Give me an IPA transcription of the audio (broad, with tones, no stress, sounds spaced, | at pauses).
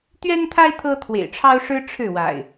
t̪ ɥ ɛ˦ n t̪ʰ a˦ ɪ̯ t̪ʰ ɤ˦ t̪ʰ w ḛ˨˩ ɪ̯ ʈ͡ʂʰ ɑ˦ ʊ̯ ʂ ɻ̩˦ ʈ͡ʂʰ ɻ̩˥˨ w a̰˨˩ ɪ̯